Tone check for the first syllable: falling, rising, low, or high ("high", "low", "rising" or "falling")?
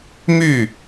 falling